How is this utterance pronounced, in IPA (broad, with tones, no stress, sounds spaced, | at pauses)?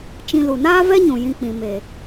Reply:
t͡ʃ ĩ˧ l u˨ n aː˦ v ɛ˦ ɲ ũ˨ j ĩ˧ k͡p ĩ˨ m e˨